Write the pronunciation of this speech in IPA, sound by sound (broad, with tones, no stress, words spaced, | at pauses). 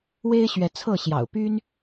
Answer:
we˥ɪ̯ɕɥɛ˧˥t͡sʰɤ˥˩ɕjɑ̰˨˩ʊ̯ py˥n